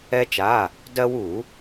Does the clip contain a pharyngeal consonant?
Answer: no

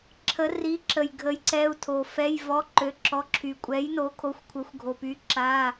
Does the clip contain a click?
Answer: yes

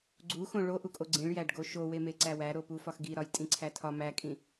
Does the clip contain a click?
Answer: yes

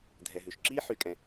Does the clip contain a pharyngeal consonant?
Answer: yes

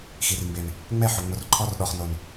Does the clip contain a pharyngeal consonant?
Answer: yes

